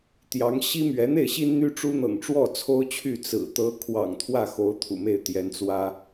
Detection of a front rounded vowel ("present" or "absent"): present